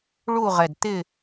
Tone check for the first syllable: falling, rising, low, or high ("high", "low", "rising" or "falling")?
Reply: falling